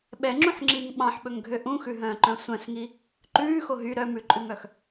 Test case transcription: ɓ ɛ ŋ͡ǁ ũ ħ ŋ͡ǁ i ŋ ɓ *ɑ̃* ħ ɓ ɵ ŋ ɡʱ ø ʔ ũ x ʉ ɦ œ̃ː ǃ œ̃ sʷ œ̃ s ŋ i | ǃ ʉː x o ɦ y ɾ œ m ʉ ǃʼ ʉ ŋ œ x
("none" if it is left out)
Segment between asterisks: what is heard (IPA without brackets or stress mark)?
ɑ̃